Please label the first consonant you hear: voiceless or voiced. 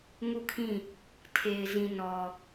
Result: voiced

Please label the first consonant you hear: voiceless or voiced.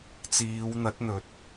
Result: voiceless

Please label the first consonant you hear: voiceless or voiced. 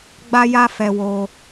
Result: voiced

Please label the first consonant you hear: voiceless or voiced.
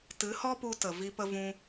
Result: voiceless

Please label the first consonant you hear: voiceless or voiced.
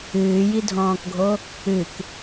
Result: voiced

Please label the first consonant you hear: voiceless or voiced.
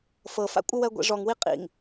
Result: voiceless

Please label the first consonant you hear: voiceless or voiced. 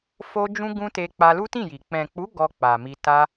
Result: voiceless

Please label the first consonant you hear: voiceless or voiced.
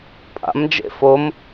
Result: voiceless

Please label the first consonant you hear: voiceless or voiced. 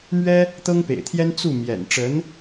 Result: voiced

